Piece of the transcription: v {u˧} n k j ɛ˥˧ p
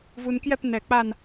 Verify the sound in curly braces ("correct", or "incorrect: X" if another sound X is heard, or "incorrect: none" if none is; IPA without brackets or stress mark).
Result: correct